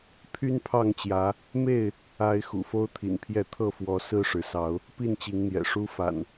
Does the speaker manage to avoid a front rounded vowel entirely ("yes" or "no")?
no